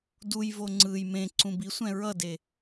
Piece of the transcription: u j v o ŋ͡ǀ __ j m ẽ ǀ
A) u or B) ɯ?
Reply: B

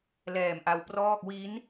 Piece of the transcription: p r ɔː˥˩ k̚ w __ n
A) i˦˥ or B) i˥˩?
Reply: A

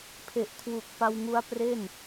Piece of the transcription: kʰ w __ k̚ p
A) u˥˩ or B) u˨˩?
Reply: B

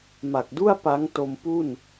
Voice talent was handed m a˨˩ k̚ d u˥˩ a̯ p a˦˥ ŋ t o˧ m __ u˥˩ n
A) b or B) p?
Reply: B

